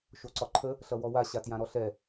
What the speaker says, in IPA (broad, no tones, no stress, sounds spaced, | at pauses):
ʃ o ǀ ɒ ǃʰ ə | ɬ ʌ w ɔ w a ɕ a t j ã ɾ ɔ ɬ ɛ